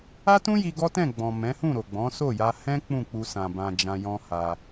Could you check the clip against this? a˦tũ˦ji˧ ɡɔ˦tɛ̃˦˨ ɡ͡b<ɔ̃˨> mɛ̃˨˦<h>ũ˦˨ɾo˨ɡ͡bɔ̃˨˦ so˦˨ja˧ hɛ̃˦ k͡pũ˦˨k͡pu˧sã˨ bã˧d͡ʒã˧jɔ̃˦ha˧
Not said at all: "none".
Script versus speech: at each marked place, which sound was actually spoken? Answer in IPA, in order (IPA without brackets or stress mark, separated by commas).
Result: ɔ̃˨, h